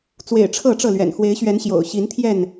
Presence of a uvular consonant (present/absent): absent